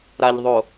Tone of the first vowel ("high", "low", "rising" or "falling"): low